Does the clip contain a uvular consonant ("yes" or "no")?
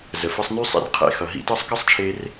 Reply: yes